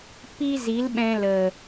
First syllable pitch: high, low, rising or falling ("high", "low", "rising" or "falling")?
high